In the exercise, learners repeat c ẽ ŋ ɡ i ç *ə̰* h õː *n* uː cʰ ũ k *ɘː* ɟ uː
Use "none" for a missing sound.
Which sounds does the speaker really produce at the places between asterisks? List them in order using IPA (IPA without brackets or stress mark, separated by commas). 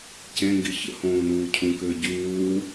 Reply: ə̰, n, ɘː